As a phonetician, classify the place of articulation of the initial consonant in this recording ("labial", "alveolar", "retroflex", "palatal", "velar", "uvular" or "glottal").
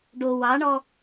retroflex